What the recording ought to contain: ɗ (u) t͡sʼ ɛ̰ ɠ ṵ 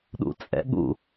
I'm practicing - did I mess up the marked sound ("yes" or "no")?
yes